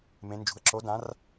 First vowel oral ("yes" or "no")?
no